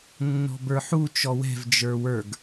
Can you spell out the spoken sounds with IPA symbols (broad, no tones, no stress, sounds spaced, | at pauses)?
nː ɔ̤ b ə˞ ħ u t͡ʃ ɔ w ɛ̤ v d͡ʒ ə˞ w ə˞ ɡ